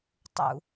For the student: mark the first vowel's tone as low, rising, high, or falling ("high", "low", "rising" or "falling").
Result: high